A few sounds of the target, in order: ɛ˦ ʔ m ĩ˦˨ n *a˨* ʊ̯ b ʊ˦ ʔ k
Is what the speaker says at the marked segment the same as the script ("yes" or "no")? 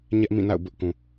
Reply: no